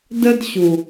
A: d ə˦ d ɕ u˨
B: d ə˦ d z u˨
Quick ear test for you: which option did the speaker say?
A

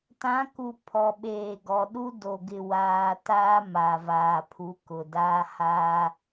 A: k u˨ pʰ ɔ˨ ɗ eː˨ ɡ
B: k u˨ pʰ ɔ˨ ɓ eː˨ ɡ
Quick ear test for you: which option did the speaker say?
B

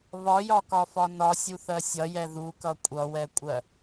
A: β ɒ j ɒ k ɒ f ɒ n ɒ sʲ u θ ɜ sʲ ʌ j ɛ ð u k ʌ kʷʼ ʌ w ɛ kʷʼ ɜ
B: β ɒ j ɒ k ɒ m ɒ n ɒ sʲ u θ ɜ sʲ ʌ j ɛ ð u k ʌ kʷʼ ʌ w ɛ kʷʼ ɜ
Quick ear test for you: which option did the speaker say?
A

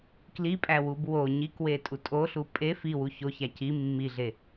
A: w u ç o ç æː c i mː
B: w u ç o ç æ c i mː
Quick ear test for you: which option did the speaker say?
B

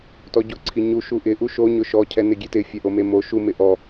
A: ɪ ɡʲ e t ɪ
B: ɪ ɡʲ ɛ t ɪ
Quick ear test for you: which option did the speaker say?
A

